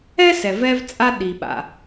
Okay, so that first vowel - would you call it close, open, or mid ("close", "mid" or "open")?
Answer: mid